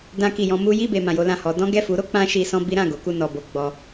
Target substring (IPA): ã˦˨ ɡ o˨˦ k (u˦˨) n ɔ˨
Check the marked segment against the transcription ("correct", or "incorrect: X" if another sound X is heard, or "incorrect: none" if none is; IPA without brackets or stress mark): correct